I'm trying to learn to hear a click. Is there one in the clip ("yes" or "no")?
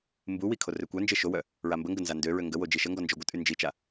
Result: no